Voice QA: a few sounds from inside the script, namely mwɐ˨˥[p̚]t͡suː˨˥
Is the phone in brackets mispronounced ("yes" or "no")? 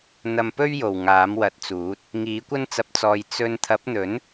yes